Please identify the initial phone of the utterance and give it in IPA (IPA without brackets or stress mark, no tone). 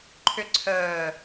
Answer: ǃʰ